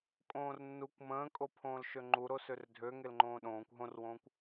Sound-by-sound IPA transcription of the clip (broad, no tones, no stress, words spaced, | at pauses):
kʼõːrnːukʷ mə̃ːkʼo pʰõːlʃøŋ͡ǃu ɾosørdʱøŋel ŋ͡ǃõːɗõːkʷ ɦõrwõːkʷ